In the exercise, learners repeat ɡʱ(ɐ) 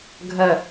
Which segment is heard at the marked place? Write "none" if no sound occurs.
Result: ɐ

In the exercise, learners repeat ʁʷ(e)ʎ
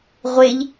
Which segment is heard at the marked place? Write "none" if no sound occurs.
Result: e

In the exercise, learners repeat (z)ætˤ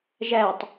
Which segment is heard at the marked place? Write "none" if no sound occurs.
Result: ʒ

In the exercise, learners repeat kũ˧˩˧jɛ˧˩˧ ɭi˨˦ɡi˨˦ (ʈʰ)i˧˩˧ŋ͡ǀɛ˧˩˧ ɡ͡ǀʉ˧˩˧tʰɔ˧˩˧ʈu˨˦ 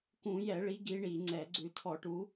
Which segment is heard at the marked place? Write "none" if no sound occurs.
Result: ɳ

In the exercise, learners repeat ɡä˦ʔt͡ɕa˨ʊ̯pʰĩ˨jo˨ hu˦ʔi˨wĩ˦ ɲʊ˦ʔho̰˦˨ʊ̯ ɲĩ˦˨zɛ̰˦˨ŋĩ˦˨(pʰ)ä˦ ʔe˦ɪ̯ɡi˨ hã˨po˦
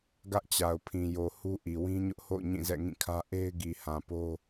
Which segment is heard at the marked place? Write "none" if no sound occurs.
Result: kʰ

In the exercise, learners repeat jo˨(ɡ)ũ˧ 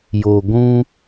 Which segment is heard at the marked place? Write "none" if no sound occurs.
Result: ɡʷ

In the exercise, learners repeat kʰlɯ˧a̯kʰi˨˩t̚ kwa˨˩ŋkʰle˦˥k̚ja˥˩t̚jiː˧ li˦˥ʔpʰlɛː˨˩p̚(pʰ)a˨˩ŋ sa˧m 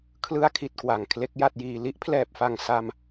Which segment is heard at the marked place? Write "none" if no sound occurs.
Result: f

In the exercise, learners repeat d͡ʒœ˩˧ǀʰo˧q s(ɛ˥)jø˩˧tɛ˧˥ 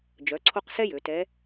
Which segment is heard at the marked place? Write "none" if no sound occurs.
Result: ɛ˥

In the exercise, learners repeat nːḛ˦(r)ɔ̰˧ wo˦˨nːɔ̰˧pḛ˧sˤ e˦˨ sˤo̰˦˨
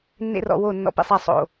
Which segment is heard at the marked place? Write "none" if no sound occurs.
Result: r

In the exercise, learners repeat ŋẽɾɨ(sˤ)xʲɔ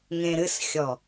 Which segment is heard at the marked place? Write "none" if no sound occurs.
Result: s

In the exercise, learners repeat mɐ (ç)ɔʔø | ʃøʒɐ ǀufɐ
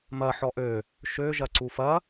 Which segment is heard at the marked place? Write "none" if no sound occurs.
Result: ħ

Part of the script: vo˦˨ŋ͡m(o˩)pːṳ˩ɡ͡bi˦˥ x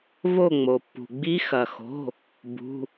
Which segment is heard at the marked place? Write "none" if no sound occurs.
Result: o˩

